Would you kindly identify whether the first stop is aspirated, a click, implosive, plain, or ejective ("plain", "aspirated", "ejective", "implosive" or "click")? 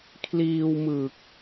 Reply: aspirated